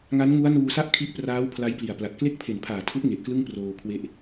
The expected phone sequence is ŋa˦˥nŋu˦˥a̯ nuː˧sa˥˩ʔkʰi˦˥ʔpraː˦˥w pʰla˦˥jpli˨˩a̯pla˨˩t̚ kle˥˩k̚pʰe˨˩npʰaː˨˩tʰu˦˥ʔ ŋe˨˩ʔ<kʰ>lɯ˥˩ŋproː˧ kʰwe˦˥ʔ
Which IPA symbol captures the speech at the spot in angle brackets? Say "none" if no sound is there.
k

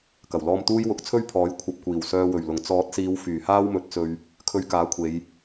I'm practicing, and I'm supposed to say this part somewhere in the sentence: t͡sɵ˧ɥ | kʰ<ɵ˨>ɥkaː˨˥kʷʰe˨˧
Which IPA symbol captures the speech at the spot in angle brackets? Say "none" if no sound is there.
ɵ˧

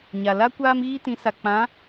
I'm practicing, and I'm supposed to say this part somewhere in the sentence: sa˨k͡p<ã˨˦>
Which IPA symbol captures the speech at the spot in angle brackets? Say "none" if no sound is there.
ã˨˦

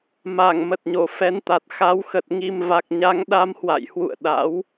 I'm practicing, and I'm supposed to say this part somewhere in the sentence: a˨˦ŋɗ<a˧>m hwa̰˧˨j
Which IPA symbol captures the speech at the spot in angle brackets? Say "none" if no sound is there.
a˧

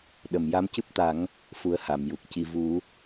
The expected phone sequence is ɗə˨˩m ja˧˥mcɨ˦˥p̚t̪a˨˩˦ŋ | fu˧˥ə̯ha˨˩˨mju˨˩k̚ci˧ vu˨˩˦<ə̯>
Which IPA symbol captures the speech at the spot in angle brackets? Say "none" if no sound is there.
none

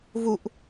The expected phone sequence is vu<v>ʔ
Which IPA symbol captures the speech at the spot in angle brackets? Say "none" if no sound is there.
none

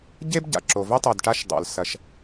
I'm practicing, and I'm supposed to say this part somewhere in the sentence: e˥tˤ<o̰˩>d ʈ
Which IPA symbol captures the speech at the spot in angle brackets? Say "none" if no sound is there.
o˩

